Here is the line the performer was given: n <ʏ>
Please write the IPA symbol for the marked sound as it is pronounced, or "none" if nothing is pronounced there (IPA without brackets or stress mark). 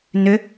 ʏ